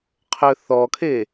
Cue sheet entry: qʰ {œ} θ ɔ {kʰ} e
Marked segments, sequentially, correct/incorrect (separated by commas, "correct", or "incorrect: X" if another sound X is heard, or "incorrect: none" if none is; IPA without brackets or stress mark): correct, correct